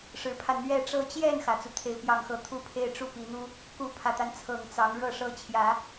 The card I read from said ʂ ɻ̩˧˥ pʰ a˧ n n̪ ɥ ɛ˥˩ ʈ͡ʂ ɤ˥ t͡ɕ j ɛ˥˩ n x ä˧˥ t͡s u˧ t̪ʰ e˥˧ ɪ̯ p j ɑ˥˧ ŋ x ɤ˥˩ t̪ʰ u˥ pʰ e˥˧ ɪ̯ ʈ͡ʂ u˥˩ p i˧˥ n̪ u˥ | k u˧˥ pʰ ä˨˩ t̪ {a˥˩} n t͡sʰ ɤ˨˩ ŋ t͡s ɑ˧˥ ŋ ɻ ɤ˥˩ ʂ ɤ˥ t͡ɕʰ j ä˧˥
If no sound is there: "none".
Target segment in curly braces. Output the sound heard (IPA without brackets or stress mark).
a˦